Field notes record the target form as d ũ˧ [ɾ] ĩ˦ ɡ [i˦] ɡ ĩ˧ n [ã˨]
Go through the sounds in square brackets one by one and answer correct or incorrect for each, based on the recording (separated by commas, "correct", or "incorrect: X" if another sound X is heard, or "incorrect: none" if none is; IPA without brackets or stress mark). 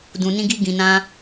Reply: incorrect: n, correct, incorrect: ã˦